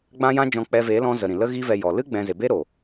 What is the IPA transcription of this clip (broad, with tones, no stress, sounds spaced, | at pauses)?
ɡ͡b ã˦ j ã˦ d͡ʒ ɔ̃˧ k͡p ɛ˧ v e˨˦ l ɔ̃˧ z ə˨ ɾ ĩ˨ l ə˦ ɣ i˦ v ɛ˧ j ɔ˨ l ɨ˦ ɡ͡b ɛ̃˧ z e˨ b e˦ ɾ o˨